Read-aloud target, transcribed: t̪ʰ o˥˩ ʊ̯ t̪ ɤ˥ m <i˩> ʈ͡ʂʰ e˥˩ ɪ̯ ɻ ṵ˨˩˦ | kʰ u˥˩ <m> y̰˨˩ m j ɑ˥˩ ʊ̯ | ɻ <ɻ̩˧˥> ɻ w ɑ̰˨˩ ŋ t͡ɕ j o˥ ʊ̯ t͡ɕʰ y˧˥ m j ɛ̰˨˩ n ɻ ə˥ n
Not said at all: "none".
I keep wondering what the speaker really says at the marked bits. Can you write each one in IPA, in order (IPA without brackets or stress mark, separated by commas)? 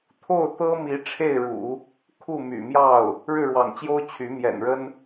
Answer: i˧˥, m, ɻ̩˥˩